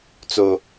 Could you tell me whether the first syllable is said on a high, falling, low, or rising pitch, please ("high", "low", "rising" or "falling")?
low